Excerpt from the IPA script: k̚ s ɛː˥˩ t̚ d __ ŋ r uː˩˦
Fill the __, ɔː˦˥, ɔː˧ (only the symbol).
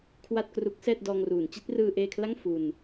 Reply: ɔː˧